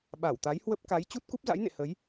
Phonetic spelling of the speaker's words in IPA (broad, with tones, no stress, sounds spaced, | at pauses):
ɓ a˧˩ w t̪ a˨˦ j h w ə˦˥ p̚ k a˨˦ j t͡ɕ u˦˥ t̚ k u˦˥ p̚ z a̰˧˥ j n ḛ˧˨ h ə˨˦ j